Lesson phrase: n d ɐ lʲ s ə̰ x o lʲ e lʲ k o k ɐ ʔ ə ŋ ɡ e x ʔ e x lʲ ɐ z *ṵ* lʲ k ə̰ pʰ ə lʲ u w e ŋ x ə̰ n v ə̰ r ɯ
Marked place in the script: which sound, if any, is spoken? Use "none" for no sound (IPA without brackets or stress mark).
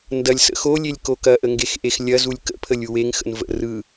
u